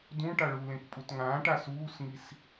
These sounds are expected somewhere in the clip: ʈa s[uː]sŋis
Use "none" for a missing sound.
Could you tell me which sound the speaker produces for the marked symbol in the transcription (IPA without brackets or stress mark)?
uː